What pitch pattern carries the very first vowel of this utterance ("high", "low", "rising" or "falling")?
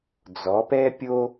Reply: rising